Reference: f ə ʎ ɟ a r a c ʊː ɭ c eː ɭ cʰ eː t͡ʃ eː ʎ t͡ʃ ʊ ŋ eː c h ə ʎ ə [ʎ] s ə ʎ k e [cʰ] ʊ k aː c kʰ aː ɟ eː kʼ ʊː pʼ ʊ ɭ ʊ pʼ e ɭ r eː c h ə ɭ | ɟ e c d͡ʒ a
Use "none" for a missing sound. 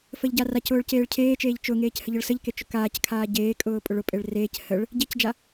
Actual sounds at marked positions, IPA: ɭ, t͡ʃ

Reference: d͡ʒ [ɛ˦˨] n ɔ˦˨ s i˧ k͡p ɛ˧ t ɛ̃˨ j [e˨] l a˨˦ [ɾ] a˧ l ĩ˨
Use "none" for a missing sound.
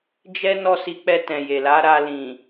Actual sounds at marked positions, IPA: ɛ˦, e˨, ɾ

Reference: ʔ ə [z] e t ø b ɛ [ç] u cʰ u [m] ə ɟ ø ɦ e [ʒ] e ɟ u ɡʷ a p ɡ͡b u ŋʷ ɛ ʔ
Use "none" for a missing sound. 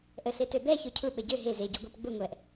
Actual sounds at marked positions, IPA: ɬ, ç, ɓ, z

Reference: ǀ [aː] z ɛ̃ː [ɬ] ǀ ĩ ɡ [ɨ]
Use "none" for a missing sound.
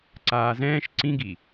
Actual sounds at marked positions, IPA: aː, ʃ, i

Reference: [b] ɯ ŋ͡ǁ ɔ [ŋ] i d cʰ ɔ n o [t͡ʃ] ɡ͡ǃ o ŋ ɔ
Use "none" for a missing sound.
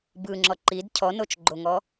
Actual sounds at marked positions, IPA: b, ǃ, t͡ʃ

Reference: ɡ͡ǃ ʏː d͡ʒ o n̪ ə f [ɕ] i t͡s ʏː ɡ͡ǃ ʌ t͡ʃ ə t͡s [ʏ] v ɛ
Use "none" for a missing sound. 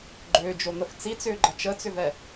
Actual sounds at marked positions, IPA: t͡s, ʏ

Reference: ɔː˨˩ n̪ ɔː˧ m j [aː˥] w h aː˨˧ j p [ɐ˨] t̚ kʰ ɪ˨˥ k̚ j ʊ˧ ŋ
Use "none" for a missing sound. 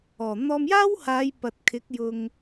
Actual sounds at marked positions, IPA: aː˥, ɐ˨

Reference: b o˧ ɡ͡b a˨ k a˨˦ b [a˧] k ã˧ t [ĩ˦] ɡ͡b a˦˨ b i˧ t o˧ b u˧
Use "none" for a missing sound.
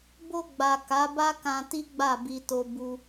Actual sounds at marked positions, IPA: a˦, i˦

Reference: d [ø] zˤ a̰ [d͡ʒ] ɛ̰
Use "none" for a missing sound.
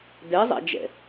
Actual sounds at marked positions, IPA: ɛ, d͡ʒ

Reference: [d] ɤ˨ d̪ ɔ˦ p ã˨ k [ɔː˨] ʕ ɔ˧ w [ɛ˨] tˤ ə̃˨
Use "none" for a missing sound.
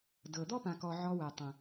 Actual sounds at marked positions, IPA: d, ɔ˨, ɛ˨

